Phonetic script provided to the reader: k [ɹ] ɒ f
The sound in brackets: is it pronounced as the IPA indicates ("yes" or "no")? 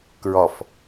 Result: yes